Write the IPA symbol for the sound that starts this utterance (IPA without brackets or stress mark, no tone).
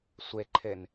sʷ